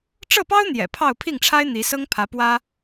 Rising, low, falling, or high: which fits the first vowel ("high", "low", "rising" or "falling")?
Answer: falling